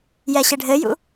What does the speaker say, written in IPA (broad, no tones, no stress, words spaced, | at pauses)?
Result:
jɛɕɘɖʱɘjṵ